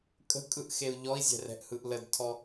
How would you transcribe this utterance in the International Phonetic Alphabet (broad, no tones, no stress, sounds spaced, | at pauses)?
kʼ ə̤ kʼ ɯ ʔ x e u̯ ʎ ɔ i̯ zʲ ɛ̤ r ɛ̤ ʔ h ɯ ʔ l ə d tʰ ɔ